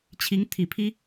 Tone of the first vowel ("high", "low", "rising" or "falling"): rising